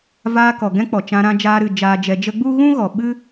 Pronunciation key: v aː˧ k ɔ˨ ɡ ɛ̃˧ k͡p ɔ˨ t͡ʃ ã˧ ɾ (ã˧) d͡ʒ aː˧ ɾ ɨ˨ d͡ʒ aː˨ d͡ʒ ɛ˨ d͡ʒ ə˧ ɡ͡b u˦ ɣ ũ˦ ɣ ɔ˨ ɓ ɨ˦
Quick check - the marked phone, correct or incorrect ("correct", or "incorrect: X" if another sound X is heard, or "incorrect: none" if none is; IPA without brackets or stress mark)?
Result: correct